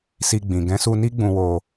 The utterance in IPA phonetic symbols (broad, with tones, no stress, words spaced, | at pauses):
si˧ɡ͡bĩ˨ ɡɛ̃˨˦su˧ni˦ ɡ͡bũ˧wo˧